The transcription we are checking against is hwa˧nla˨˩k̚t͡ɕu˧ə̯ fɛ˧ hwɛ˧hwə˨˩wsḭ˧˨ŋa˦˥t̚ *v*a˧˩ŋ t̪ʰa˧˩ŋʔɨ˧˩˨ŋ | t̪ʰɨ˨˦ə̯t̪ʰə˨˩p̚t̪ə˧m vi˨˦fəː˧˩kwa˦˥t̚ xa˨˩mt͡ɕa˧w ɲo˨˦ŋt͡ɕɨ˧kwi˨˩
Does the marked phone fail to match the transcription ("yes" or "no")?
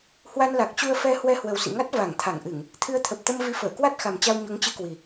no